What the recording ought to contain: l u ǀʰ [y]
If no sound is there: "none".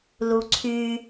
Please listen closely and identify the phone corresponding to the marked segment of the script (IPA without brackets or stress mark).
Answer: y